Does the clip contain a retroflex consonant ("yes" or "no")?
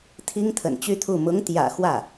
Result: no